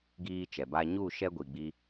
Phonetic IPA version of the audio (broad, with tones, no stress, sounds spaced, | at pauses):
ɡ iː˦ t͡ʃ ɛ˨ b a˦ ɲ u˦˨ ʃ ɛ˦ ɡʷ i˨ ɡ͡b i˧